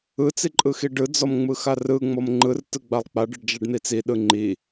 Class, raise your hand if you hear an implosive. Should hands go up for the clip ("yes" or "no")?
yes